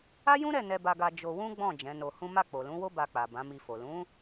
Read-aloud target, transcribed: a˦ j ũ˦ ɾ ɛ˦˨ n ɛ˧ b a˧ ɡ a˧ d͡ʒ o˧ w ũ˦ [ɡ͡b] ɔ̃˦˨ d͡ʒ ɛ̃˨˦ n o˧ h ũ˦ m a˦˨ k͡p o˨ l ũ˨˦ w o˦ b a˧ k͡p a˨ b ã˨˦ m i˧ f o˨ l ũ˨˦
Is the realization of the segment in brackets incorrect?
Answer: no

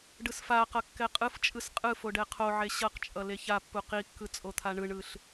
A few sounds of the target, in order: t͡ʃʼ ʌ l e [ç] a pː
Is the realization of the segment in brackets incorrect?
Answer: no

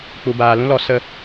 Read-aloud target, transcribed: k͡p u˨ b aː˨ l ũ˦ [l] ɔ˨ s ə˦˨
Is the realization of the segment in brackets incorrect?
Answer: no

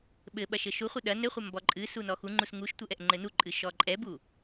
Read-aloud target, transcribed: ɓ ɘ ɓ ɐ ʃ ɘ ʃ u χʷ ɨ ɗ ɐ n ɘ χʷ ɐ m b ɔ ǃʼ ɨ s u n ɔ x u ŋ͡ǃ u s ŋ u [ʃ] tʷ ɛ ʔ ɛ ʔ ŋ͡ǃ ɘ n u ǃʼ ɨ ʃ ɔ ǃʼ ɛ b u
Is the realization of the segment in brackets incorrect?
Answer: no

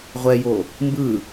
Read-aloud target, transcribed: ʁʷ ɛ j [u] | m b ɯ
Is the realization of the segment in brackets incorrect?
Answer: yes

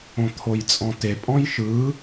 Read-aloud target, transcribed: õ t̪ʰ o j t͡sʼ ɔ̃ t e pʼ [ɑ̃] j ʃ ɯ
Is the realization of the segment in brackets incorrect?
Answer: yes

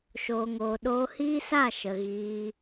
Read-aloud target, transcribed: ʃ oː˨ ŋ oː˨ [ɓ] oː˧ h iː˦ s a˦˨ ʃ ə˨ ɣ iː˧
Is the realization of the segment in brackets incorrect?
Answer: yes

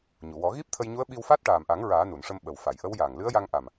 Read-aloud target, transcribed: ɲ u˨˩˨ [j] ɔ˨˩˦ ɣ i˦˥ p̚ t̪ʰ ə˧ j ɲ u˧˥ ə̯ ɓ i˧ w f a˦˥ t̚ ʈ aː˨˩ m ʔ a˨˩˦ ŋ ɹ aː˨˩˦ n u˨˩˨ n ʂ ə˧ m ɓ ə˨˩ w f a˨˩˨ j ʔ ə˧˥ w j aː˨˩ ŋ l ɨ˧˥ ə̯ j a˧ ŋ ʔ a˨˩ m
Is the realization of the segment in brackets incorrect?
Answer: yes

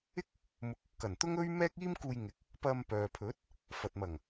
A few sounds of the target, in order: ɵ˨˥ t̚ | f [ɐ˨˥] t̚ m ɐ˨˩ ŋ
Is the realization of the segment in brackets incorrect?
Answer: yes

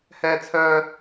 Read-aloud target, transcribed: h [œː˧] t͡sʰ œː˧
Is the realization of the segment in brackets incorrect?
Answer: yes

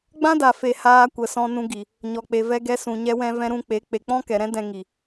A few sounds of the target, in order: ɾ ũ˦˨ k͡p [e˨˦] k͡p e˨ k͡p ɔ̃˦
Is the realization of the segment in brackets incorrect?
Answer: no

